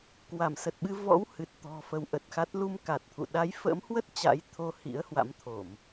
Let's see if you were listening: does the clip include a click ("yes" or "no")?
no